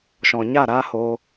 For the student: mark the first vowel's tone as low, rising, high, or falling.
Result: low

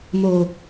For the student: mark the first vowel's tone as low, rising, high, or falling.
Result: low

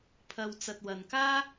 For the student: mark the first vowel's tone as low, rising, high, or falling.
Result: low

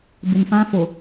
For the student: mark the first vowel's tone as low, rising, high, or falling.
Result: low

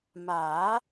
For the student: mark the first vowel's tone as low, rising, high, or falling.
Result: rising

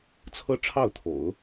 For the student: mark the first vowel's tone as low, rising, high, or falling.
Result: high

